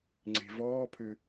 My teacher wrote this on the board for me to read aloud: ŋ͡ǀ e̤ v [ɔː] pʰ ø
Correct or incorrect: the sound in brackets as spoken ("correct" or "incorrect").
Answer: correct